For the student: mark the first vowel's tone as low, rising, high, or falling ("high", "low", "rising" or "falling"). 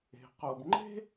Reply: low